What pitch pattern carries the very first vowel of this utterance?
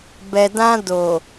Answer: low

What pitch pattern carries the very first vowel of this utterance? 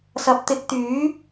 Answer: rising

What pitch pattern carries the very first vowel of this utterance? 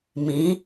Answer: rising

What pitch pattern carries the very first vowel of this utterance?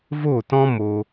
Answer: falling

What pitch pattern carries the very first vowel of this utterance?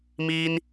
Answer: high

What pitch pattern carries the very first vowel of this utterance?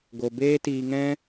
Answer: low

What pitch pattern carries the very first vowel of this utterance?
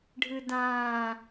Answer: low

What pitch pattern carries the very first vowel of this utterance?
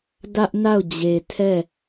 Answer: high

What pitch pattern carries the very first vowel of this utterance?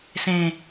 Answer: low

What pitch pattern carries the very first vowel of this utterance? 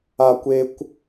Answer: high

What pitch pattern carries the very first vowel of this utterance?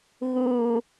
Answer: low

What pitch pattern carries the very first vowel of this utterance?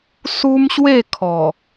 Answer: high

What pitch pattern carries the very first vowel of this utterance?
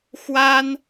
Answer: high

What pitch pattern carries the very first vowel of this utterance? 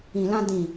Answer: low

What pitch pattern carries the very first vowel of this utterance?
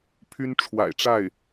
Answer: high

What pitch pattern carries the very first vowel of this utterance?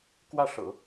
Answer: falling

